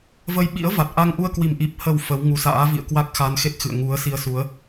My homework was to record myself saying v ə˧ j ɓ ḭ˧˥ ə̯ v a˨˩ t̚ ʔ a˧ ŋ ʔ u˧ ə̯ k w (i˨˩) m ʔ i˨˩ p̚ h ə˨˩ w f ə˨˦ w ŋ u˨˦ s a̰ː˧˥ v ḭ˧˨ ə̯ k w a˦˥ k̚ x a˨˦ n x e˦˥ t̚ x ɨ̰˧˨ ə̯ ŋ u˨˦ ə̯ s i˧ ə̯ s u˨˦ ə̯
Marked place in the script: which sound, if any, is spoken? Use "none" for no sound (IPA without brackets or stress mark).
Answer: i˨˩